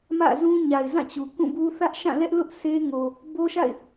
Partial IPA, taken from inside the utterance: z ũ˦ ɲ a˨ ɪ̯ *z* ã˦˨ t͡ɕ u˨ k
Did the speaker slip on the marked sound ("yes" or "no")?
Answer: no